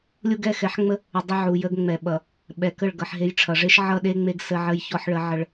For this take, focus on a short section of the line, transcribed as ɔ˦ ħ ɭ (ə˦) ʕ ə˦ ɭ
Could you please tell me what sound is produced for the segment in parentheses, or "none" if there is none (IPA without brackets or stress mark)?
ə˦